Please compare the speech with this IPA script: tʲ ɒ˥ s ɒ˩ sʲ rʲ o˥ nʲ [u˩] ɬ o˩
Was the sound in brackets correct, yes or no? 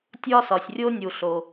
yes